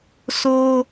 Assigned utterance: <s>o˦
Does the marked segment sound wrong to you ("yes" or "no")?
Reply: no